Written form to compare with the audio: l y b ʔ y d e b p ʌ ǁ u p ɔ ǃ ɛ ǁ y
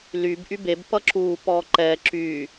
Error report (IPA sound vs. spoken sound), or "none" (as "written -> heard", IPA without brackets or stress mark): d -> b